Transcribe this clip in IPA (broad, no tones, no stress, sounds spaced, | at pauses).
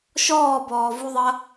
ʃ ɔː b ɔː v u ðˤ ɐ